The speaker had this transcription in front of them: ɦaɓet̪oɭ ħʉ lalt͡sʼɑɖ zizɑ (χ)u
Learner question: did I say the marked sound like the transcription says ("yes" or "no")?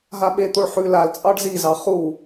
yes